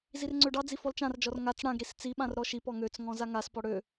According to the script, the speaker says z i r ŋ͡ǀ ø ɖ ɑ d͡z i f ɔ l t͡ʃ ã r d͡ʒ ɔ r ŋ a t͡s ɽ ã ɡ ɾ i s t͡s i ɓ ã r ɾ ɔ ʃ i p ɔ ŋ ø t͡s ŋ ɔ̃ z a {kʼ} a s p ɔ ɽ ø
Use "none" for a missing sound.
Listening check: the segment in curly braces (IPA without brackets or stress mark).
ŋ